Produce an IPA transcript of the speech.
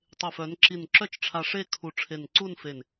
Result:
tˤ e˧˩ f œ˩˧ n ǁ i˧˩ n ǁ œ˥˧ t͡ʃ ʈ͡ʂʰ a˧ ʂ e˥˧ kʰ u˧˩ ʈ͡ʂʰ e˧˩ n ǀ u˥˧ n f e˧˩ n

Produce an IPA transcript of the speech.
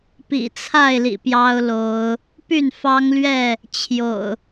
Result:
p ḭ˨˩ t͡sʰ a˥˨ ɪ̯ l ḭ˨˩ p j ɑ˦ ʊ̯ l o˨˦ ʊ̯ | p y˥˨ n f ɑ˦ ŋ l ɥ ɛ˥˨ | t͡ɕʰ j o̰˨˩ ʊ̯

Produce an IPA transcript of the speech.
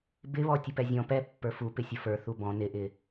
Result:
b ɪ β ɔ tʲ ə p ɛ zʲ ɔ̃ p ɛ pː ə˞ f u p ɪ sʲ ə f ə˞ θ u b ɔ̃ n ɪ ʔ ɪ

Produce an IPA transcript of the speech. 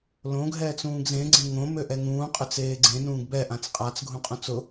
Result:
l õ ɡʱ ɛː t͡s ũː ɡ z ẽ ɡ͡ǀ ẽ ŋ õ m ø ʔ ɛ ŋ ũː qʼ ø t͡s eː ɡ͡ǀ ẽ n ũː ɡ b ɛ ʔ ã t͡s qʼ a t͡s ɡʱ ũ qʼ ũ t͡s ʊ

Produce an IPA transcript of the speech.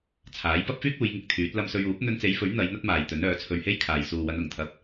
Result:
t͡sʰ aː˨˥ j p ɐ˥ p̚ f yː˥ k̚ uː˨˧ j ŋ ɪ˧ k̚ t̪ʰ yː˨˥ t̚ l ɐ˧ m s ɵ˧ ɥ uː˨˥ p̚ n̪ ɵ˧ n t͡s e˨˧ j f ɵ˨˥ ɥ n̪ ɐ˨˧ j n̪ ɐ˥ t̚ m aː˨ j t̪ ɵ˨˥ n œː˨˥ t͡sʰ ɵ˧ ɥ h e˥ j kʰ aː˨ j s uː˨ w ɐ˨˧ n ʊ˨˩ ŋ t̪ʰ ɐ˧ p̚

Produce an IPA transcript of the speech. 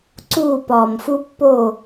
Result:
ǀ uː˧˩ p ɒː˩ m f u˧ pː o˧˩

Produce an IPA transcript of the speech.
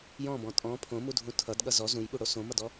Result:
j ɔ̃ b ɔ̃ tʼ ɔ̃ pʰ õ m u dʱ ũ tʰ ʌ d ɠ ʌ z ɔ z ũ j ɓ u ɽ o s õ m ʌ d ɔ

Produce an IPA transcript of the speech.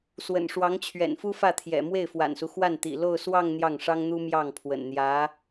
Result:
s w ə̰˨˩ n ʂ w ɑ˧˥ ŋ t͡ɕʰ ɥ ɛ̰˨˩ n f u˥ f ä˥˩ t̪ʰ j ɛ̰˨˩ m w e˥˩ ɪ̯ f w a̰˨˩ n s u˦ x w a˥˩ n t̪ ḭ˨˩ l o˥˧ ʊ̯ s w ɑ˥˧ ŋ n̪ j ɑ˥˩ ŋ ʂ ɑ˥ ŋ n̪ u˥ m j ɑ˥˩ ŋ pʰ w ə̰˨˩ n n̪ j ä˧˥

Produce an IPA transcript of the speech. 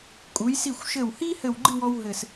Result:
kʼ u˩˧ j s i˧˩ xʷ ʃ ɘ˧˩ w h i˥ h ɘ˧˩ w ɡ͡ǃ ɨ˥˧ w ɔ˧ w ɦ ɘ˧˩ s

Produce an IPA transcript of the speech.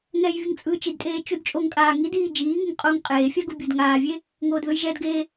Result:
ŋ ɛ j vʲ ɯ ŋ t͡sʼ ɯː t͡ʃ i d tʼ eː t͡ʃ u d t͡ʃʼ o ŋ kʼ aː ŋ i d iː d͡ʒ iː ŋ ɯ ŋ qʼ o ŋ qʼ eː fʲ a ɡ u bʲ u d ŋ aː vʲ e | ŋ oː d ð ɯ j ʒ ɛ d ɡ eː

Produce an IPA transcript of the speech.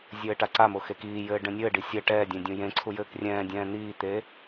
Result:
zʲ ɘː ʈ a ǀ a m o x e k iː j ɘː ɖ ɛ̃ nʲ ɘː ɖ i sʲ ɛ ʈ ɛː dʲ ẽ dʲ ũ j ẽ ǀʰ u j ɘː k rʲ ɛ̃ː dʲ ɛ̃ː n̪ iː t̪ e

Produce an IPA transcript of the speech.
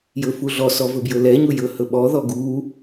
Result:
j ɵ f u ɮ ɔ s ɔ v ɵ b j ɵ l ɛ ɲ u j ɵ h ɵ ɓ ɔ ð ɔ ɡ u

